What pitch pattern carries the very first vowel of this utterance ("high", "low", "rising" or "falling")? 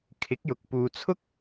rising